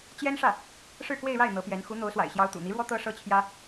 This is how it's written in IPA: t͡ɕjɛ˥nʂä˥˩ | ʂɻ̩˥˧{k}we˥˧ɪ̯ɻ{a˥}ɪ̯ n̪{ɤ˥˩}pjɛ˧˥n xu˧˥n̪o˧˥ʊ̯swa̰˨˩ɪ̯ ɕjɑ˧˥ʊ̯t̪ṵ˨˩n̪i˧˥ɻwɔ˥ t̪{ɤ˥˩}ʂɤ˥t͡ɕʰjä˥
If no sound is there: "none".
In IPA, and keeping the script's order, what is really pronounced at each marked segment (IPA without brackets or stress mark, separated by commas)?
k, a˥˩, ɤ˧˥, ɤ˥